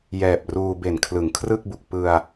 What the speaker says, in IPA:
jɛː˨˩p̚ruː˧ be˨˩nkʰlɯ˩˦ŋkʰrɯ˥˩k̚bu˨˩k̚ pɯ˧a̯

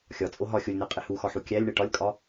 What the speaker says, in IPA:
xʲɒ t͡sʼoɦɒ xʲolʲnæqʼe huxɒħu kʲælʲɳe ʈɒlʲkʼɒ

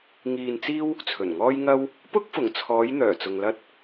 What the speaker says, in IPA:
ŋiː˧nt͡siː˥w | t͡sʰɵ˨˩nŋɔː˥jŋɐ˥w | pʊ˥k̚fʊ˨˩ŋt͡sʰɔː˨˧j n̪œː˨˩t͡sʊ˨ŋ lɐ˧t̚

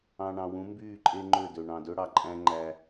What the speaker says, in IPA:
ɑ̃˨ɳɑ̃˨wũ˨˦ mbyː˦˨ǃʼe˦ŋ͡ǃø˦˨dø˨ ɳɑ̃˨dø˦ɽɑ˨ǃʼæ̃˦ ŋ͡ǃæ˦

